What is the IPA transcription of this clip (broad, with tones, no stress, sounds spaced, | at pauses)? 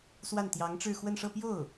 s w a˥˩ n t̪ j ɑ˧˥ ŋ ʈ͡ʂ ɻ̩˥˧ x w ə˥˧ n ʂ ɤ˥˧ p j o˥˩ ʊ̯